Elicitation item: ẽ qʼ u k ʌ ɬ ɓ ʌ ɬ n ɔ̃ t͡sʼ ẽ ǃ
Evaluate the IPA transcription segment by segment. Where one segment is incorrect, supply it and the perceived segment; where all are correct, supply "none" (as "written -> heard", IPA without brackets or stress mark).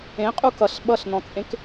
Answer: ǃ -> k